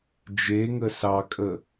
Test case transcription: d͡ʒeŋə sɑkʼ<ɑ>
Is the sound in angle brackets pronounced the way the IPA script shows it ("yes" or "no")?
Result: no